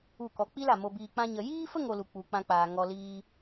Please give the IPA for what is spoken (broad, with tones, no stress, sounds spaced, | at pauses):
u˦˨ k ɔ˧ k͡p i˦ l a˨ m o˧ b iː˧ k͡p ã˦ ɲ ə˧ j iː˦ f ə˦ ŋ o˧ l u˨ k͡p u˧ k͡p ã˦ k͡p aː˧ ŋ ɔ˧ l iː˦